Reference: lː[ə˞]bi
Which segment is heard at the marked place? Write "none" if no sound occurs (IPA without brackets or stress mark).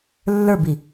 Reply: ə˞